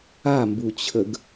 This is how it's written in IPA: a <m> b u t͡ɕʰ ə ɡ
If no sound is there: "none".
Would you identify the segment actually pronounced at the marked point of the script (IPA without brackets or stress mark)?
m